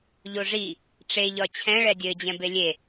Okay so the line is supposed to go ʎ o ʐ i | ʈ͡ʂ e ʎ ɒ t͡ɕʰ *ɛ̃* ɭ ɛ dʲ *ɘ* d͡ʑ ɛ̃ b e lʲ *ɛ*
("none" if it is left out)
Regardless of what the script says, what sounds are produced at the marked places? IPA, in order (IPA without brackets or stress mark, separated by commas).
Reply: ɛ̃, ɘ, e